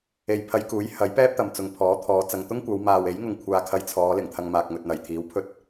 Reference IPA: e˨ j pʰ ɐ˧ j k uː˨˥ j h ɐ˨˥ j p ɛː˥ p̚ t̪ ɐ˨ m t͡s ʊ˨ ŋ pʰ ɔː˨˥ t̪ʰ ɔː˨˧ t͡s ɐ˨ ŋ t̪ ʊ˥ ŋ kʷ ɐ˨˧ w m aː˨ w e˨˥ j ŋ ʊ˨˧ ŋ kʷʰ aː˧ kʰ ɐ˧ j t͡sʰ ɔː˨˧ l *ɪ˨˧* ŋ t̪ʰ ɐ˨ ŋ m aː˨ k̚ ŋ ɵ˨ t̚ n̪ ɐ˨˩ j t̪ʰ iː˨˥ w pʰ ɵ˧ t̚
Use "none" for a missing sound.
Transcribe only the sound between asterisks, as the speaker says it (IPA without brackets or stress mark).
ɪ˨˩